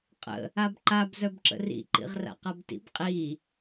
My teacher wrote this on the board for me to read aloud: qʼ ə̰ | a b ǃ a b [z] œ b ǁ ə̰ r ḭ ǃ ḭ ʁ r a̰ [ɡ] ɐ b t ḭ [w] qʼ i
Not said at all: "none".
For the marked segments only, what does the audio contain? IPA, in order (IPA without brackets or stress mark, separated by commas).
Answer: z, q, b